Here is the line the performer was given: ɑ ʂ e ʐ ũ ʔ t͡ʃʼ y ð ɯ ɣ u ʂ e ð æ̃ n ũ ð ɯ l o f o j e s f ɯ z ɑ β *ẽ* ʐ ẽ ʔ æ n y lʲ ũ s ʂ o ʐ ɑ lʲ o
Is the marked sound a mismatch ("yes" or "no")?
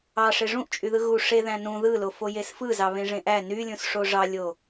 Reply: no